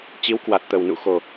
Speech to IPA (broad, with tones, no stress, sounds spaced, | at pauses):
t͡ɕ i˨˦ w k w a˨˩ t̚ t̪ ə˨˩ w n ṵ˧˨ x o˨˩